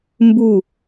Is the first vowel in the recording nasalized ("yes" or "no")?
no